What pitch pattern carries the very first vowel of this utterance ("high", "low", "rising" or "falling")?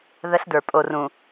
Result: high